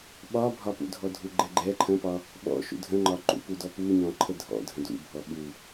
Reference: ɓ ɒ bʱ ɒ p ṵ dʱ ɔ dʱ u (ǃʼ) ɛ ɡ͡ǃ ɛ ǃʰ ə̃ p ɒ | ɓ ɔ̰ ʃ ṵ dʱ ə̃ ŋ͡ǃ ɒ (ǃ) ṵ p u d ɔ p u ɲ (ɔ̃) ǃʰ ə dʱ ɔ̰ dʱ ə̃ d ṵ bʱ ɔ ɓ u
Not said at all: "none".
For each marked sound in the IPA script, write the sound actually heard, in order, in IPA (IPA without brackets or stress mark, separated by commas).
ɡ͡ǃ, ǃ, ɔ̃